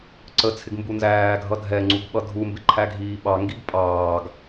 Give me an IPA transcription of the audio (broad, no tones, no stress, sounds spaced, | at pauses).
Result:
ǀ ə t͡sʰ ɪ ɡ m b u n z æː ɡʱ ʌ dʱ ɛ ŋ͡ǀ u ɡ ɓ ʌ dʱ u m b ɪ ǃʰ æ ɡʱ iː ɓ ɑ ŋ ɡ i ɡ pʼ ɑː ɡ